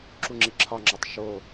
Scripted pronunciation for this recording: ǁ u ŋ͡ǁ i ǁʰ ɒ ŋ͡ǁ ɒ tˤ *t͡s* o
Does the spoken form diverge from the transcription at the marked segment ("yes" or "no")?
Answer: yes